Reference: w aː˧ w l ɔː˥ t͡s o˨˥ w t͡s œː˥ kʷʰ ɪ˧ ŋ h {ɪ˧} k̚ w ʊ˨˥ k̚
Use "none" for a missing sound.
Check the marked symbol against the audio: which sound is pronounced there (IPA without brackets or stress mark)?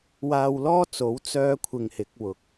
ɪ˨˥